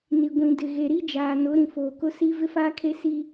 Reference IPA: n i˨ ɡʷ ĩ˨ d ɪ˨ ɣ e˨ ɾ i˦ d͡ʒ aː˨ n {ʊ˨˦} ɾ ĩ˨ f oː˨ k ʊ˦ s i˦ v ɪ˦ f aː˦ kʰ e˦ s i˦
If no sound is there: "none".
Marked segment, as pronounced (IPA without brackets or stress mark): ʊ˨˦